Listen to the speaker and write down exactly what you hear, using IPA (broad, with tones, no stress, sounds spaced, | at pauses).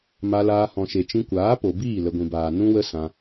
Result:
m a˧ l aː˧ h ɔ̃˨ ʃ e˨ t͡ʃ ĩ˧ kʷ aː˨˦ p o˨ b iː˦˨ l ə˨ ɡʷ ĩ˨ b aː˨ n ũ˦ w ə˦ s ã˧